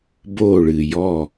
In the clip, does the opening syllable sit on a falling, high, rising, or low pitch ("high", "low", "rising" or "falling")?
falling